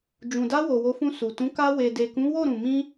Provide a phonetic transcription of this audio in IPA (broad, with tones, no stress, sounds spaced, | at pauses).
d͡ʒ ũ˨ d a˧ w o˨ w o˨˦ f ũ˧ s u˨ t ũ˨˦ k a˧ w e˨ d e˨ k ũ˨˦ w o˦˨ ɾ ũ˨ m ĩ˧